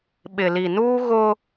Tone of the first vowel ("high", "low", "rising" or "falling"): low